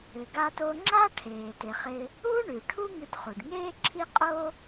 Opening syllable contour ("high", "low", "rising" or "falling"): low